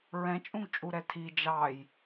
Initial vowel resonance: nasal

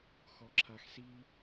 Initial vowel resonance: oral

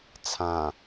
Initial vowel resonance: nasal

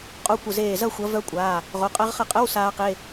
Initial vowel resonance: oral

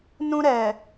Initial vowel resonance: nasal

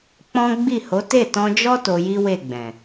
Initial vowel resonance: nasal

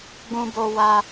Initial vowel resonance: nasal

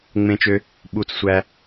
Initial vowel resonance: nasal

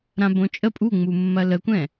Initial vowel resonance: nasal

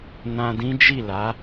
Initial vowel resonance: nasal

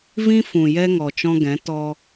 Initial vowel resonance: nasal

